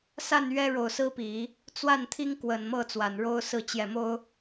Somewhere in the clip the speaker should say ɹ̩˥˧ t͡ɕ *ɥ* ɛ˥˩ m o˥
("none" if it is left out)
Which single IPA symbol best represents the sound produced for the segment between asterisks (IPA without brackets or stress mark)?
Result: j